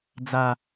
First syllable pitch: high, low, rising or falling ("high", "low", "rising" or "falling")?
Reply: low